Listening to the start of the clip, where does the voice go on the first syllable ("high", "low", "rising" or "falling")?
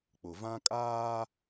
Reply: low